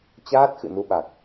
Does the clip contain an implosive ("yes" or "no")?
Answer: yes